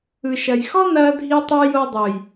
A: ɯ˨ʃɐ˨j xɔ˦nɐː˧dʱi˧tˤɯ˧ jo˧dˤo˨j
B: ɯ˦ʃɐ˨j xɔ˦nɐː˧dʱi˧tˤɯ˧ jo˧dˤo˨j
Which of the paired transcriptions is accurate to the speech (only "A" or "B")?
A